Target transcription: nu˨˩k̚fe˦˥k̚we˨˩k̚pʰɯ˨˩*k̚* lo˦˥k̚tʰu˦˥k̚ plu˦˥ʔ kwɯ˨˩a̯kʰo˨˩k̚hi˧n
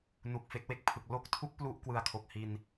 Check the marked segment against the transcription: correct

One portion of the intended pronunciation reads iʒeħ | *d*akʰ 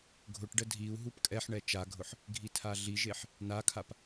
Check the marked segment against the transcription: incorrect: n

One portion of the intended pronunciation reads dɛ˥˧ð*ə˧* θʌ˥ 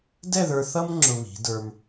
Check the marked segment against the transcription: incorrect: ə˞˧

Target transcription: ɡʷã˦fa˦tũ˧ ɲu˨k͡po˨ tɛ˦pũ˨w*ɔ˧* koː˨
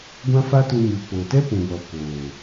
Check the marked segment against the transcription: incorrect: ɔ˨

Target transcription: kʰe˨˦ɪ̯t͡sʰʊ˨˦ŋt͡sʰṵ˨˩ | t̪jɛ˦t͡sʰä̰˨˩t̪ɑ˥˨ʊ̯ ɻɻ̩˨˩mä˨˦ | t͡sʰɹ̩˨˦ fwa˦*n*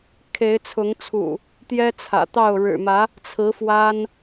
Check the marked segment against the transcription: correct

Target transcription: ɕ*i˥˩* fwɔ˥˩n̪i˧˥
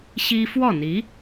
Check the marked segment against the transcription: incorrect: i˥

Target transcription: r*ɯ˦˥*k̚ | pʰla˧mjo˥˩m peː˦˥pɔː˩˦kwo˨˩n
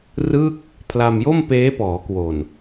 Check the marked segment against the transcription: incorrect: ɯ˥˩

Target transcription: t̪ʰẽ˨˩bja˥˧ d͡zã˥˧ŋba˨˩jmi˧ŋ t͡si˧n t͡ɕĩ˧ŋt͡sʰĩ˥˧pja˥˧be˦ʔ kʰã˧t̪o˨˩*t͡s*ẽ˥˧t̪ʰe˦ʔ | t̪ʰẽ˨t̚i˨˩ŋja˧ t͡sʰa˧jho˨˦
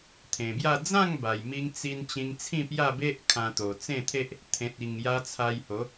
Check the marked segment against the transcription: correct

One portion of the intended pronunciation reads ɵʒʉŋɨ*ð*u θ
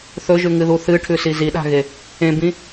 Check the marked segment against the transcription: correct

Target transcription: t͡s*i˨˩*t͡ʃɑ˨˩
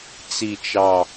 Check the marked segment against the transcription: correct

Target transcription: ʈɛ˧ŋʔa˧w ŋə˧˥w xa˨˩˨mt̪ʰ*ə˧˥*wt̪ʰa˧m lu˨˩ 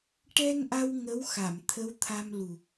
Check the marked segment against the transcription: correct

